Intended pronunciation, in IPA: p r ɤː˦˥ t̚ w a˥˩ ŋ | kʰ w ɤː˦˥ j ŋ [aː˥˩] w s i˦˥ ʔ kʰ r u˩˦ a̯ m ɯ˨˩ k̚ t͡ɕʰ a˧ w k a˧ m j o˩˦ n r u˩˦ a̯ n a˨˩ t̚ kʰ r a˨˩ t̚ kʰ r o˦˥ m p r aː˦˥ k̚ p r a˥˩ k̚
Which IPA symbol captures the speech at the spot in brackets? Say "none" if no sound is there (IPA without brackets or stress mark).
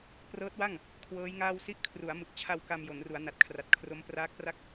aː˥˩